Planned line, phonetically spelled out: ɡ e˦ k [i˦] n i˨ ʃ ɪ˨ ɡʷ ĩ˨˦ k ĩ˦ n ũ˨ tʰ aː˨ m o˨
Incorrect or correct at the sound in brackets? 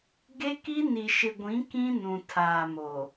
correct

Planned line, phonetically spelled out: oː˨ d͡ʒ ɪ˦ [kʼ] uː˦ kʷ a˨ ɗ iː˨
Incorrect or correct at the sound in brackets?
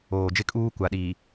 correct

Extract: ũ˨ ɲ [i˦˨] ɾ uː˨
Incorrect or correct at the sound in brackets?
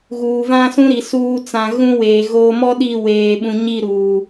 correct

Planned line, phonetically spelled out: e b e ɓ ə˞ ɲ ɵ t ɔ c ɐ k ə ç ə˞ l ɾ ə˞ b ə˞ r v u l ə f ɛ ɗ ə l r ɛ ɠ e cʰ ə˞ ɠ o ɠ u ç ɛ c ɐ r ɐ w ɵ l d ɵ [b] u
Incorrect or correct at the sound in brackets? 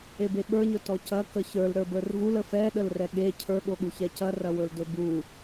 correct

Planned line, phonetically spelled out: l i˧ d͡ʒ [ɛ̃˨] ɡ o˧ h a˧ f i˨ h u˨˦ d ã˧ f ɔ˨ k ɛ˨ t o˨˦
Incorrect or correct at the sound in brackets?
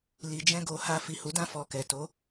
incorrect: ɛ̃˦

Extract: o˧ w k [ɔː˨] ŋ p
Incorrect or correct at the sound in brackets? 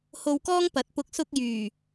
incorrect: ɔː˥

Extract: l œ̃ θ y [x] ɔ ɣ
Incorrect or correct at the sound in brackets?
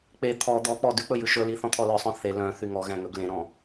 incorrect: ŋ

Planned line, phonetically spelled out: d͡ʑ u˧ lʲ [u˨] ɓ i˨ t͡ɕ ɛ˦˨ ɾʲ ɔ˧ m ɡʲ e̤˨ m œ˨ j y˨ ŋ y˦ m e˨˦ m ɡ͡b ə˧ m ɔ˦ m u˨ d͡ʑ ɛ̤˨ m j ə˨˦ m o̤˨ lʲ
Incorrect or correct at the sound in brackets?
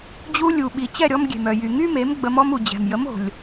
correct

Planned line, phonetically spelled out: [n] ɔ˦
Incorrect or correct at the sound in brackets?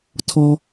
incorrect: tʰ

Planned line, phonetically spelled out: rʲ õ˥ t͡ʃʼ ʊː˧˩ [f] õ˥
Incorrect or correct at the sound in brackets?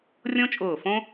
correct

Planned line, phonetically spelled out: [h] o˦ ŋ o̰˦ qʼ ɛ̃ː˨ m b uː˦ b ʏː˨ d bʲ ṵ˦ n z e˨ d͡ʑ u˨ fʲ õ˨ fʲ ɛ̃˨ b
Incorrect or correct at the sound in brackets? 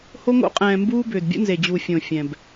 correct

